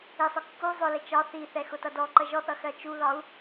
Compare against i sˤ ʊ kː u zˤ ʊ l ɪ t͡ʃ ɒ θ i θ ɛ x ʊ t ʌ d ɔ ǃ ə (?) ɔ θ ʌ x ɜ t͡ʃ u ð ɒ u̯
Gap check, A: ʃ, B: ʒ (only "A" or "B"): B